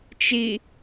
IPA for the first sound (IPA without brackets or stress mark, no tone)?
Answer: t͡ʃ